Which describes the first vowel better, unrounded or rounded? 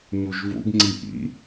rounded